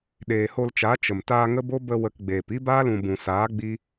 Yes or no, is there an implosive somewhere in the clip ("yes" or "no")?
yes